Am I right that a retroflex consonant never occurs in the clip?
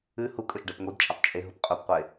no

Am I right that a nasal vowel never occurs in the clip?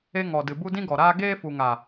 no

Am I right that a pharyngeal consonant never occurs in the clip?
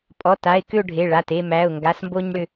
yes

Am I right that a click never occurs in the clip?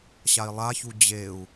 yes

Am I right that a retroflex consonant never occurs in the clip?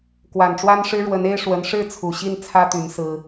no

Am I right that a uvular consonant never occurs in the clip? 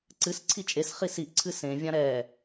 no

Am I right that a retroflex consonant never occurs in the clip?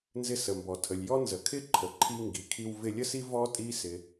yes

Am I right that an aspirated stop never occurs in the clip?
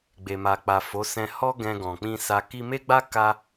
yes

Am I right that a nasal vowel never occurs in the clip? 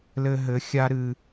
yes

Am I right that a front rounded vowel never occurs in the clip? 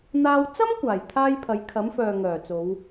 no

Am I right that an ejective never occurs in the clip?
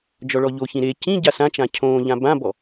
yes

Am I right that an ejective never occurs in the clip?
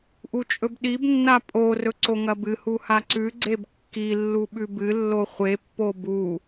no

